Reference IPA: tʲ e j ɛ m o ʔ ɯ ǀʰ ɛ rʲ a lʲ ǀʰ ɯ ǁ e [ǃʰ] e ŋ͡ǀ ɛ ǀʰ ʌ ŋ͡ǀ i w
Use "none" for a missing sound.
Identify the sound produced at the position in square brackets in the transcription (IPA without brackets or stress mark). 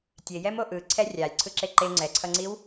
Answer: ǃ